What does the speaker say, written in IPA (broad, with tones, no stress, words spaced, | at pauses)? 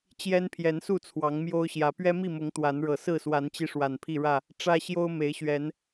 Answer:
t͡ɕjɛ˦npʰjɛ˨˦nsu˥˨ t͡sʰwɑ˨˦ŋmjo˦ʊ̯ɕjä˨˦ pɥɛ˦mi˥˨mʊ˨˦ŋ t̪wa˨˦nɻɤ˨˩ sɹ̩˥˨swa˨˦nt͡ɕi˧ ʂwa˨˩npʰi˥˨ɻä˥˨ | ʈ͡ʂä˦ɕjo˦ʊ̯ me˨˦ɪ̯ɕɥɛ˨˦n